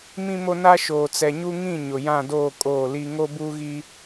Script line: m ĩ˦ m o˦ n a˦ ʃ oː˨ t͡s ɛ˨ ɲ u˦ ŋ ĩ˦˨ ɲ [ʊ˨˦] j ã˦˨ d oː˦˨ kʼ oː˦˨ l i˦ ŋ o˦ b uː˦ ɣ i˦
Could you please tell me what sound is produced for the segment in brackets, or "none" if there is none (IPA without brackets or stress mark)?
ʊ˨